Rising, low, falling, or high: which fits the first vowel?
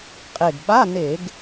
low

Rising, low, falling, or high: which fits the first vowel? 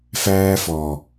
high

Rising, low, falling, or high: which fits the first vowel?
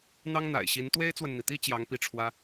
high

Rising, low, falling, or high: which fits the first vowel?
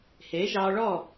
rising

